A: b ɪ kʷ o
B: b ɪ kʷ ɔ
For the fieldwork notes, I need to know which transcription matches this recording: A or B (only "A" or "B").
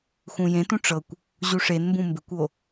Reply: A